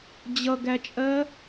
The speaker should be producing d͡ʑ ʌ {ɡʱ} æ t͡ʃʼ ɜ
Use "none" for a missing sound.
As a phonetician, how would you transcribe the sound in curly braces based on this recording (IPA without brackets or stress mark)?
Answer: ɡ